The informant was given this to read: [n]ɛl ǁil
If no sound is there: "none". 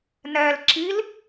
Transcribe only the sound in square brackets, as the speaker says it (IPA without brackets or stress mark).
n